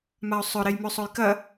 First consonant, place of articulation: labial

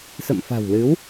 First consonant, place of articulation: alveolar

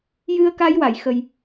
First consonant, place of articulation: palatal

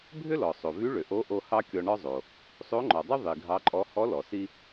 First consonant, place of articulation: labial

